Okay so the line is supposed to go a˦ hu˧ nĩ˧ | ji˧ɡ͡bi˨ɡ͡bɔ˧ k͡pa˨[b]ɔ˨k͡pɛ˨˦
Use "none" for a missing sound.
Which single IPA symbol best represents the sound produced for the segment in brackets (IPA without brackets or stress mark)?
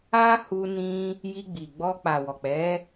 w